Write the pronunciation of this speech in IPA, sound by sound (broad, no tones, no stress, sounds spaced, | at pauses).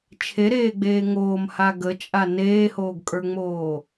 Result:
t͡ʃʰ e ɾ eː ɡ͡b eː ŋ oː m h a ɡ ə t͡ʃʼ a n eː h oː ɡ kʼ ə˞ ŋ͡m oː